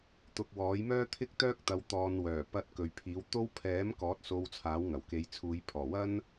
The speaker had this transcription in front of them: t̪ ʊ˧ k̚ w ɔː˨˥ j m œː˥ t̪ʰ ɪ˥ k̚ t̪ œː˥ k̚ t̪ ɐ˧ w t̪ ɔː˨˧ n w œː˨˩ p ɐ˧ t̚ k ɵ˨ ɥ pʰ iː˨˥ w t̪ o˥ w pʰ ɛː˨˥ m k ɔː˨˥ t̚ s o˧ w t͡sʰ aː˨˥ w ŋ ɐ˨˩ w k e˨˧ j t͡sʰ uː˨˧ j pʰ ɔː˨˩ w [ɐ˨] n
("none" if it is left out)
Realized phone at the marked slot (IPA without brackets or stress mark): ɐ˥